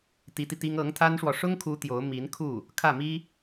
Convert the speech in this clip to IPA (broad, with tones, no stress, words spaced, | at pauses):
t̪i˧˥t̪i˧t̪i˥ŋ ɤ˧˥ŋt̪ʰa˥nʂwɔ˨ ʂʊ˥ŋkʰu˧˥ t̪jo˧˥ʊ̯ mi˧˥nkʰu˥˩ | kʰä˥˩mi˥